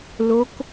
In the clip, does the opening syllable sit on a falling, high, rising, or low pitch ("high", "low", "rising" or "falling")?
rising